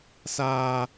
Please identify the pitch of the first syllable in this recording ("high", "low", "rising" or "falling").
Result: high